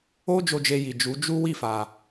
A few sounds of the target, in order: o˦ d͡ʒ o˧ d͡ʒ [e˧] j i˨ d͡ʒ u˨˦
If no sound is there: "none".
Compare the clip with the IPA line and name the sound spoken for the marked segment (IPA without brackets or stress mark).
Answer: e˧